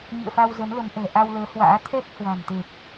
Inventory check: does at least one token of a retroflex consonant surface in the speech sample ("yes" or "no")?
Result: no